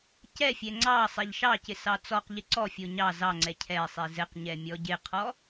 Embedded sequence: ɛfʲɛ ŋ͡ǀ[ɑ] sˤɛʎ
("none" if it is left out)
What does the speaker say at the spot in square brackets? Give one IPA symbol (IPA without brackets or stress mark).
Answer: ɑ